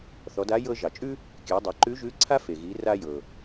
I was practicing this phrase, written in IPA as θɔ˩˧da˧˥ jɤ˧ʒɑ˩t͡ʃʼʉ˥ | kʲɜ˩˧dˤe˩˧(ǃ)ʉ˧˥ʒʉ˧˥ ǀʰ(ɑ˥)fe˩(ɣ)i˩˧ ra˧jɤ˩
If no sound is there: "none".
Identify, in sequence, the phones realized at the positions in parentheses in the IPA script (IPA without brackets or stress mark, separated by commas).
ǃ, a˥, ɣ